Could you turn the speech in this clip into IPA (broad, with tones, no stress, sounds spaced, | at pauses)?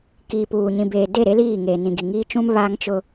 k iː˨ p uː˨ ɲ ĩ˨ b eː˨ d e˦˨ ɾ e˦ l iː˦˨ ŋ eː˨ n ĩ˨ ɡ i˨ ŋ iː˦ t͡ʃ ũ˦ m β aː˦ ŋ t͡ʃ ʊ˦